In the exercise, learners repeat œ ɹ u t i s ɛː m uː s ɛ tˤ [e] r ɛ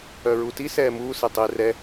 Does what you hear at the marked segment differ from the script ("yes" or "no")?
no